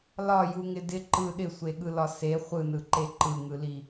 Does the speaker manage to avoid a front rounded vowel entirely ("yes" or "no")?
yes